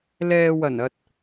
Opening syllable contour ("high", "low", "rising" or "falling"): low